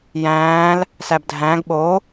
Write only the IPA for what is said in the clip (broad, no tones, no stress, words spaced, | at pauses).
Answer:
jæ̃ːl | sæbdʱæ̃ɡ ɓo